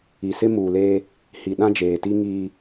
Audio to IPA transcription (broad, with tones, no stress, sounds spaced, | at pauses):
i˨ s ɪ˦ m uː˨ l eː˦ | h i˨ ɗ ã˦ d͡ʒ eː˨ t i˦ ŋ iː˦